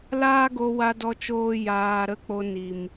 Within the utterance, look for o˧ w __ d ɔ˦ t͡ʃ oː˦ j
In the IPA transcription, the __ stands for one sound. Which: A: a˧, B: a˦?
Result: A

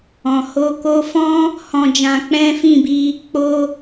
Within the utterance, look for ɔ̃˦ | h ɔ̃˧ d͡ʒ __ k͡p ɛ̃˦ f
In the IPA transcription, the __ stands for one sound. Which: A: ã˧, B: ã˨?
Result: A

